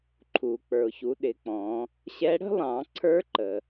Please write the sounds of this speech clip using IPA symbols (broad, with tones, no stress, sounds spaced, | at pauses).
ǃʰ u˩ k͡p ə˞˩ ʊ̯ ç u˩˧ ɗ ɪ˩˧ k͡p ɔ̃˩˧ | ɕ ɛ˧˥ ɽ ə̤˥ lˠ ɑ̃˩˧ ǀʰ ə˞˧˥ ǃ ə˩